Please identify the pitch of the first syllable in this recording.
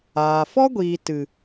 low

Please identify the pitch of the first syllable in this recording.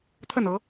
falling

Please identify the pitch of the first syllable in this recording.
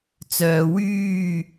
low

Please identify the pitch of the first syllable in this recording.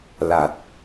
low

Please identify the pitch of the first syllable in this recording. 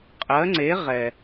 rising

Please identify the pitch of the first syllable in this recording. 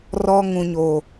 high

